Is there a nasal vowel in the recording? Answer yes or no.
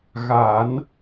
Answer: no